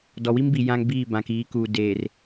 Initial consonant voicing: voiced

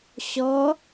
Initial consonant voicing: voiceless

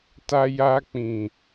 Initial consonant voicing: voiceless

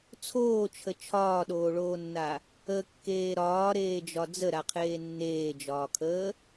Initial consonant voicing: voiceless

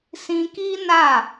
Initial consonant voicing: voiceless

